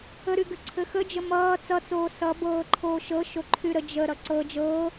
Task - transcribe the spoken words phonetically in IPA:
əɾyɡɘ ǀʰɘxəd͡ʒə mʌː t͡sʌt͡soː sʌbɤː ǃʰoːʃɤ ʃoǃʰyɾə d͡ʒə ɾʌǀɤ d͡ʒɤː

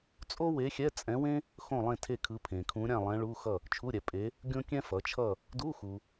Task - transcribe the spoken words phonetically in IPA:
t͡sʼo˥we˧˥xʲɛ˧˥˧ t͡sʼɛ̃˧˥wẽ˥ | xõ˥˨lˠẽ˥˨tʰe˥˨kʰɯ˧˥ pʰẽ˨kʰũ˧˥ ɾʲã˥˨lˠɛ̃˧˥ɭu˧˥˧ xʌ˥˨ | t͡ʃʰu˧˥˧ɾʲɛ˩˥ pʼe˧˥ | ɡʲõ˥kʲɛ̃˥fʌ˩˥t͡ʃʰʌ˥˨ | du˧˥˧xu˨

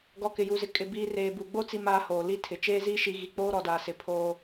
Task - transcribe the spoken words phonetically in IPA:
ɡɔ˨kɪ˨ju˨zɪ˨ kʼɪ˨ biː˨ reː˨bu˨ɡ͡bo˦ t͡si˦maː˦hoː˨ li˦tʰɪ˨ t͡ʃeː˦ziː˦ ʃi˦ ɣi˨k͡poː˦ ɾɔ˨daː˨sɪ˨˦ pʰoː˦

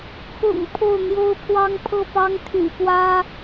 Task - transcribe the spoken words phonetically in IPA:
kʰʊ̰˨˩ŋ pʰo˥˩ʊ̯n̪jo˥ʊ̯pʰwɑ˥ŋ pʰɤ˥˩pɑ˥ŋt̪ʰy̰˨˩pwä˥

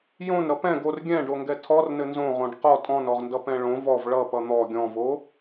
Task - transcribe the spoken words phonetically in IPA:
jõnɾʌ pɛ̃ɡ or ɡʲɛ̃ɖoŋɡɛ tʰɔrnɘ nzõʁõɖ qɔ tʼɔ̃nɔʁndʌpɛ̃ ɭõ vɔv ɭʌpʌ n̪ɔ ɡʲɔ̃vo

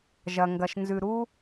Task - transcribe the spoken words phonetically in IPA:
ʒɐ˨ŋɡɐ˨ʃnzʉ˨ ɾu˦

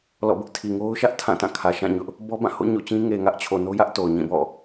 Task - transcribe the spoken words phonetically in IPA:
lɔ̰˦˨bʊ˦ʔ tʰi˨ŋo˦ʊ̯ʃä˦ʔ tʰã˦˨tã˦˨ kʰä˨ʃã˦˨ɲʊ˦ʔ | bɔ˦ bã˦˨ho̰˦˨ ɲo̰˦˨t͡ɕĩ˦ ŋe˨ŋä˦ʔt͡ɕʰo˨ no˦jä˦ʔ to˨ʊ̯ɲĩ˦˨bɔ̰˦˨

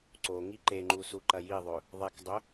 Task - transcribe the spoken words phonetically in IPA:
ǀoŋi ǃeŋ͡ǃu suǃɐjiðˤɵ | ðˤekdˤɵ

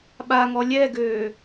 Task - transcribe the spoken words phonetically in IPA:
ɓaŋɔ lʲɛɡøː

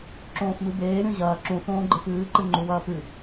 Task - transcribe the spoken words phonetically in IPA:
ǁõːfmɨbeː ɾʲõʑɐː ǁũsõː ɡ͡ǃɨfɨːǃɨ ŋ͡ǃuwɐːpɨ

